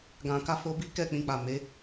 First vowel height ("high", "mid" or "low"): low